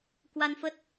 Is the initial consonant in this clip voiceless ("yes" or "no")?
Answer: yes